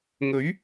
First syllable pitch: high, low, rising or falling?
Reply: rising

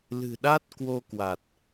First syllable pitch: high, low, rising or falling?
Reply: low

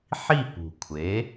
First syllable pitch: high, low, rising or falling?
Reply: falling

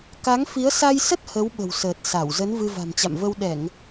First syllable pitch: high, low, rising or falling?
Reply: rising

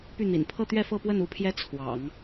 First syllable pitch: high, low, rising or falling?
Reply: falling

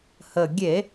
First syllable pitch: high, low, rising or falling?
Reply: low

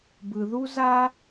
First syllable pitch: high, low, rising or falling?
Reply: low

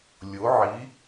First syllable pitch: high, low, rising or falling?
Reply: rising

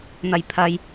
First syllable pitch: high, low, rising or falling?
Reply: low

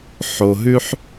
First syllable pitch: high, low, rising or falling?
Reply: low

